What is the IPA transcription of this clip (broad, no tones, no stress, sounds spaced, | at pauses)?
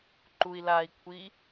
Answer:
ǃ u i̯ l a i̯ kʷʰ i